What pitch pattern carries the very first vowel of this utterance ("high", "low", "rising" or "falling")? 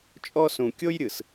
high